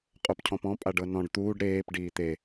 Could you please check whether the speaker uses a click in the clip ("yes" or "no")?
no